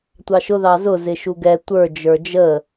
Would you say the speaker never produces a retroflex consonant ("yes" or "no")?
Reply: yes